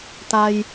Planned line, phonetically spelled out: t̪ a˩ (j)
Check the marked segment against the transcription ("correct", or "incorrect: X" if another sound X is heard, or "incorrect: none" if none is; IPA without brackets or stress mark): correct